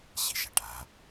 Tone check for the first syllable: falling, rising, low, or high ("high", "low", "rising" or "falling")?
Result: low